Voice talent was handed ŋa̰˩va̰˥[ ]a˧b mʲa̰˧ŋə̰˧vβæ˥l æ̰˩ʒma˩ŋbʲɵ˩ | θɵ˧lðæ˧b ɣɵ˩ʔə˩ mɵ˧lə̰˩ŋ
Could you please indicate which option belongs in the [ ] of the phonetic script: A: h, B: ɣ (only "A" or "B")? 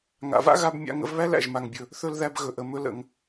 B